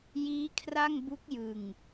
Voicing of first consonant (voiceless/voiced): voiced